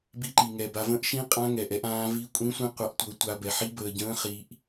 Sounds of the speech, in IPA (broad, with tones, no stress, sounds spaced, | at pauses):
b i˦˥ ǃ i˧ ŋ ɛ˧ b a˧ v ə̃˦˥ ʔ ʃ ĩ˦˥ qʼ ã˦˥ ŋ ɛ˧ ʔ ɛ˦˥ ʔ ãː˦˥ v i˦˥ kʷʼ ĩ˦˥ sʷ ĩ˦˥ qʷ a˦˥ ʔ tʷ ɤ˦˥ tʷ a˦˥ b ɛ˧ ħ i˦˥ b əː˧ ɟ ə̃ː˦˥ χ i˦˥ ʔ